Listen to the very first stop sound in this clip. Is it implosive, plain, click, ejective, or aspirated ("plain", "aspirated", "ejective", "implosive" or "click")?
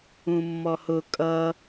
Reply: ejective